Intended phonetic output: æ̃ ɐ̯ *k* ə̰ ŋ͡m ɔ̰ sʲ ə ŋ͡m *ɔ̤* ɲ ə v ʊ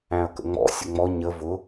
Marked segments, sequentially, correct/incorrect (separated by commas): correct, incorrect